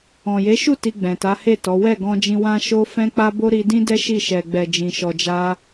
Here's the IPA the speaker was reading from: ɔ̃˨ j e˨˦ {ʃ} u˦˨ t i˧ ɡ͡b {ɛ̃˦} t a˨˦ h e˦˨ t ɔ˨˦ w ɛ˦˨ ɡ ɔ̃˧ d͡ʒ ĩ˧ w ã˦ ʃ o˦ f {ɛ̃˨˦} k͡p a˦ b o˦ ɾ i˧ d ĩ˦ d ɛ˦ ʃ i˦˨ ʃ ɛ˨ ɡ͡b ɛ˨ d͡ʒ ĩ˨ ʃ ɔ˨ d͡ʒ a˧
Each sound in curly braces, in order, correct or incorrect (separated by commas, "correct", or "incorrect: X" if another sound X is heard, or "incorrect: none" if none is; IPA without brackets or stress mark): correct, incorrect: ɛ̃˨, incorrect: ɛ̃˦